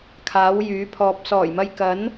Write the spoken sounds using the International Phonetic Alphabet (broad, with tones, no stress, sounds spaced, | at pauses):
kʰ aː˨˥ w j yː˨˥ pʰ ɔː˧ p̚ s ɔː˨˩ j m ɐ˧ j k ɐ˨˥ n